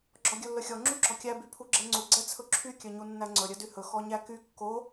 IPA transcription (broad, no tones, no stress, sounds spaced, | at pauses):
ɡ͡ǁ ɔ ɡʲ ɵ lː ɵ xʲ ɔ ŋ͡ǁ u ɡ͡ǁ ɔ kʲ æ b y pʰ u ɡ͡ǁ ɛ ŋ͡ǀ u ɡ͡ǀ ɛ t͡sʰ ɵ ǁʰ y kʲ œ ɲ u nː æ ŋ͡ǀ ɵ ɾʲ œ d y h ɵ x ɔ ɲ æ k y kː o